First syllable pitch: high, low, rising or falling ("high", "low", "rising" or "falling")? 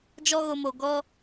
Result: high